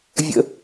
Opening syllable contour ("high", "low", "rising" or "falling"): low